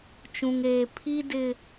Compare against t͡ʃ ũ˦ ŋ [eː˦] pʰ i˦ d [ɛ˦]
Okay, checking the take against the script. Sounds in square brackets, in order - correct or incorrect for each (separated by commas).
correct, incorrect